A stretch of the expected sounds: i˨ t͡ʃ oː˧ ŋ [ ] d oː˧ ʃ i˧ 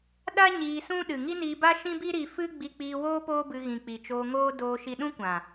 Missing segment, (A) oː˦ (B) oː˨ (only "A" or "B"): A